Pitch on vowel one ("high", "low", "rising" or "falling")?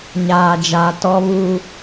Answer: low